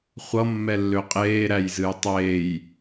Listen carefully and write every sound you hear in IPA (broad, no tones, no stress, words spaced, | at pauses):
χʷʌmːɛlːø qʼeːɾæjzɨj tˤeːj